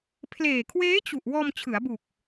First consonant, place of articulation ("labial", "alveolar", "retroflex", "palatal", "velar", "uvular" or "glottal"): labial